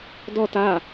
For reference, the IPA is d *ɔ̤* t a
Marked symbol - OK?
no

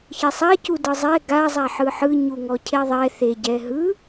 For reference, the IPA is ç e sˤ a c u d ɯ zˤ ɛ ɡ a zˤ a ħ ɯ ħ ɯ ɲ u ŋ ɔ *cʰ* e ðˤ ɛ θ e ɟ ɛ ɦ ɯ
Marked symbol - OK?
yes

